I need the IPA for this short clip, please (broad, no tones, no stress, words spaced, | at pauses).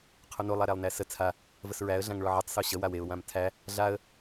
qʰono lˠaɾælˠnæsə t͡sʰa | vəsɹæə̯ ɮãŋɭɔʕetˤ soɕə waweʊ̯ wãmtʰæ | ɮaə̯